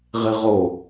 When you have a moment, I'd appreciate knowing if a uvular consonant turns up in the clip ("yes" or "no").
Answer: yes